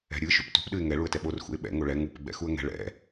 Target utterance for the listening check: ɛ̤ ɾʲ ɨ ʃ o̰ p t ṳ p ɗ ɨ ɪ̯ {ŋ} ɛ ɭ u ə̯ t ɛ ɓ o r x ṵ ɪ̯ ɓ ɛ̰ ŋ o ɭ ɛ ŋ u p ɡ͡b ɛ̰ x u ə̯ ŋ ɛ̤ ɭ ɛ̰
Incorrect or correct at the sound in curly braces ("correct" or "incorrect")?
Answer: correct